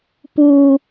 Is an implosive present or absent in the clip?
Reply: absent